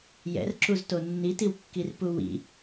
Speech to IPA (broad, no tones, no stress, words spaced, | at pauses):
jɛ̰rǁuzto nːitiwkːirpu wḭ